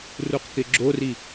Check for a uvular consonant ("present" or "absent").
present